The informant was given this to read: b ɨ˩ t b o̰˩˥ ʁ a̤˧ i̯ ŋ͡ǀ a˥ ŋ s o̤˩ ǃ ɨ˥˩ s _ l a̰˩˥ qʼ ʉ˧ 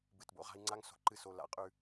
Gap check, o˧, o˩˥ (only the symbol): o˧